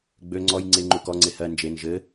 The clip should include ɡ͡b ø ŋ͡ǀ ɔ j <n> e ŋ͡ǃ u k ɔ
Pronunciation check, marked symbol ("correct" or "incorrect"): incorrect